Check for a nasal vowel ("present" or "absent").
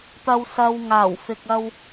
absent